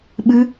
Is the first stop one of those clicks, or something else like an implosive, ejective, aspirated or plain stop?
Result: implosive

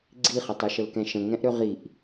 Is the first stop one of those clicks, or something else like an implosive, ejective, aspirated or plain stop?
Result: click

